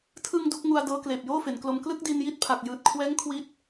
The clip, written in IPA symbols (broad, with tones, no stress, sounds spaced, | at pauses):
tʰ ɯ˧ ŋ d u˥˩ k̚ ŋ u˧ a̯ d ɤː˦˥ k l eː˨˩ p̚ j oː˥˩ f e˩˦ n k l o˧ m k l ɯ˥˩ k̚ d i˧ n j i˦˥ t̚ pʰ a˨˩ k̚ j ɯː˨˩ t̚ kʰ w ɛː˦˥ ŋ kʰ w i˦˥ t̚